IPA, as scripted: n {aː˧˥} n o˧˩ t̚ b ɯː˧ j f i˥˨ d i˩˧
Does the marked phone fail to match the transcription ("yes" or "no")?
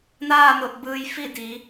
yes